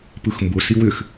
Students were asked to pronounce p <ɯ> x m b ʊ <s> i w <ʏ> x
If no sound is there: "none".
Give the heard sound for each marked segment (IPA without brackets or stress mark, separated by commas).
ɯ, s, ʏ